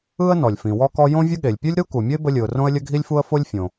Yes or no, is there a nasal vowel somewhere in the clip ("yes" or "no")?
yes